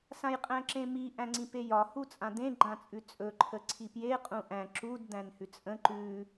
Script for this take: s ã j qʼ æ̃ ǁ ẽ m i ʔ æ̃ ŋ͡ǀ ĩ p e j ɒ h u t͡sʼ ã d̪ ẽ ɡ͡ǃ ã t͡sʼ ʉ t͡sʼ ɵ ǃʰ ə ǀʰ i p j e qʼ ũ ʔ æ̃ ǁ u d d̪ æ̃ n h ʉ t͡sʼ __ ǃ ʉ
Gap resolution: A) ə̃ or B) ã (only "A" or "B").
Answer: A